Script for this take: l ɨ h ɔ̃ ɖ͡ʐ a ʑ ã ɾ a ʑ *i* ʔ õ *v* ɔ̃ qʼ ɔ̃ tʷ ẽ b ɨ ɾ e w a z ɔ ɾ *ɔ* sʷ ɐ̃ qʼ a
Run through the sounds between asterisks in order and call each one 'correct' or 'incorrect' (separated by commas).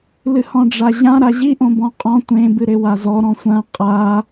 correct, incorrect, incorrect